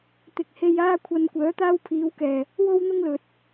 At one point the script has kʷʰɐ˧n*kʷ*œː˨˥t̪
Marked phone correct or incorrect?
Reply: correct